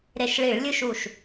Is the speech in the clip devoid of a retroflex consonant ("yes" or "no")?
no